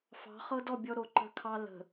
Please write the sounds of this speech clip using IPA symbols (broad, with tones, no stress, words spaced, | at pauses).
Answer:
fɑ̤˨˦χɤ˦dɔ˦˨ bʲɔ˦ ɾo˨ ǃə̤˦kʰɑ˦ lə̤˨